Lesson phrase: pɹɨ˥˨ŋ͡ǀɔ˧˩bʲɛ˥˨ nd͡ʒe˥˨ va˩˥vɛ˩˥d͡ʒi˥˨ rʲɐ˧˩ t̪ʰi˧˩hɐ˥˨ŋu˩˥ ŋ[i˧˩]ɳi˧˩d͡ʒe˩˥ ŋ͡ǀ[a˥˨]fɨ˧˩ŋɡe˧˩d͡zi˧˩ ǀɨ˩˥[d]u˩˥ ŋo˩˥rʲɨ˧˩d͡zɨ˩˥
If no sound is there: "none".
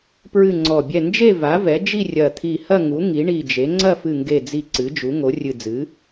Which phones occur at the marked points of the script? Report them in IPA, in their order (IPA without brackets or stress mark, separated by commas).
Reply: i˩˥, ɐ˥˨, d͡ʒ